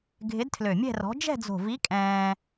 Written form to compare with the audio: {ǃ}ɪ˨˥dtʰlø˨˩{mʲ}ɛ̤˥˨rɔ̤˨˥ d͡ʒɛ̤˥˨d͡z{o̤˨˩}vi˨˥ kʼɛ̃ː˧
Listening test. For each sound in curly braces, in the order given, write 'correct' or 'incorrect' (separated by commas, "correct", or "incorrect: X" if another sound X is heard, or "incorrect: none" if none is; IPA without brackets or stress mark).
incorrect: ɡʱ, correct, correct